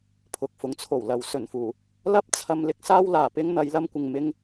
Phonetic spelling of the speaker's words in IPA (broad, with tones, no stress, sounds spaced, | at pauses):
pʰ ʊ˨ k̚ f ʊ˨˥ ŋ t͡sʰ o˨˩ w l ɐ˨ w s ɵ˨˩ n f uː˨˩ | l ɐ˥ p̚ t͡sʰ ɐ˧ m l ɪ˥ k̚ s aː˥ w l aː˨ p ɪ˥ ŋ n̪ ɐ˨˧ j l ɐ˧ m kʷ ɪ˨ ŋ m ɪ˧ ŋ